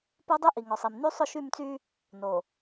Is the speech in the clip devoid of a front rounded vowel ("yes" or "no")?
no